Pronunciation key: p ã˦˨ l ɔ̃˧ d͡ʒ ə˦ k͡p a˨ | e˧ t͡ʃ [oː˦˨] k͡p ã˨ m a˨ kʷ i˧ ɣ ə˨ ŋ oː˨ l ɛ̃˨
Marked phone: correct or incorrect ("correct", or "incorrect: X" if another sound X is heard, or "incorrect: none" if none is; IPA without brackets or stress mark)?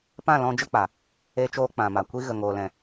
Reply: incorrect: oː˧